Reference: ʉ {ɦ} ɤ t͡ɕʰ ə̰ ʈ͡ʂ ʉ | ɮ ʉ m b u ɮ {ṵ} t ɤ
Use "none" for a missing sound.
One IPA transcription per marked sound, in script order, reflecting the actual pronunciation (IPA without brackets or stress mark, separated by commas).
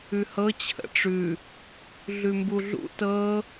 h, ṵ